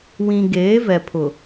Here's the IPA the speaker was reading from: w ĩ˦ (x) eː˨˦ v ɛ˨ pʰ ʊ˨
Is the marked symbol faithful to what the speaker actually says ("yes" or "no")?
no